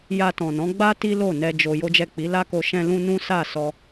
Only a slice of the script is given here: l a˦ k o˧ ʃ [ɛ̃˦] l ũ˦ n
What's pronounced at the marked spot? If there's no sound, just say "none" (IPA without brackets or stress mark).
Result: ɛ̃˦